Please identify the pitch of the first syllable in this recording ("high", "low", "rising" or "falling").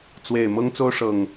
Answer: low